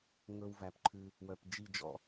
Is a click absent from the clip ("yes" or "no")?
no